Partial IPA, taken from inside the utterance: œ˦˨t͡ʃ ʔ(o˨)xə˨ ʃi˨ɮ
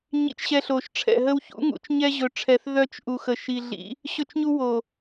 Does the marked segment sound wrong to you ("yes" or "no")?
yes